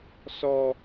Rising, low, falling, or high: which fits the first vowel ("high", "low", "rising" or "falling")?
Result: high